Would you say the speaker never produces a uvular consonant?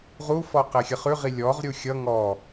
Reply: no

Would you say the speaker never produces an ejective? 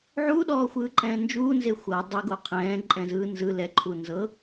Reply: no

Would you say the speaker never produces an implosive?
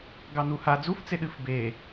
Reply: no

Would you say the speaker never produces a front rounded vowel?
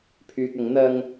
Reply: no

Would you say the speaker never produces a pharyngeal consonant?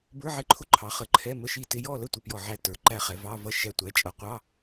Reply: no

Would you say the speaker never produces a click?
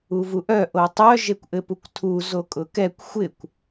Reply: yes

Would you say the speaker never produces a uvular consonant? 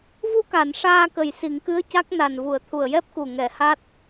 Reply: yes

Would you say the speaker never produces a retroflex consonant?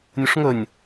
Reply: no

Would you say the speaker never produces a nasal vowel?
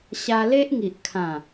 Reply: no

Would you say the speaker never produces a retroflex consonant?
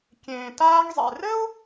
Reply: yes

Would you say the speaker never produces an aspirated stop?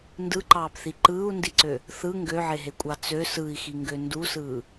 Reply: yes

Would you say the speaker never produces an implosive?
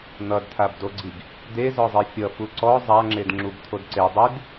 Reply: yes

